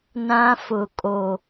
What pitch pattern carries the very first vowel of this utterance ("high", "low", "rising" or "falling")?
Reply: high